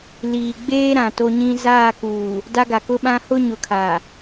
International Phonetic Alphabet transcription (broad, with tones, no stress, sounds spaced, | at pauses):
l iː˨ ɡ͡b eː˦ ɾ ã˨ t o˦ ɲ ĩ˦ z aː˦˨ k uː˨ | d a˦ ɡ a˨ k ʊ˦ ɓ ã˦ h ʊ˦ ɲ ʊ˨ kʰ a˨